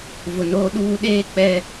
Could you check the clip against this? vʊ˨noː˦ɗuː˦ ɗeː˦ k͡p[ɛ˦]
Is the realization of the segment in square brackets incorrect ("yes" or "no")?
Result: no